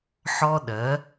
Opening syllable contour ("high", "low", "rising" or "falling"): high